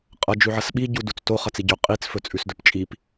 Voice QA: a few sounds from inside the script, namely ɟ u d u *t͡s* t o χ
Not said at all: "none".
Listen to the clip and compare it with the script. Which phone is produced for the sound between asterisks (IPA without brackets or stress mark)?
t͡s